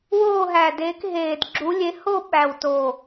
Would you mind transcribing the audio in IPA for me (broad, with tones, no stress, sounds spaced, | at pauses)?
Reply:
w oː˦˨ ɦ æ˨˩ d eː˨˦ k ɦ eː˨˩ d ɡ͡ǁ u˨˦ lʲ e˨˦ h o˦˨ ɓ æ˨˩ w t o˨˩